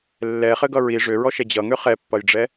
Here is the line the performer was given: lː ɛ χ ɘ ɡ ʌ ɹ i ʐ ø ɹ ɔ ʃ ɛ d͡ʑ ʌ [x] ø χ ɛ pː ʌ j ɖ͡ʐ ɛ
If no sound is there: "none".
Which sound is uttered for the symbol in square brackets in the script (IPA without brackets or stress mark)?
ŋ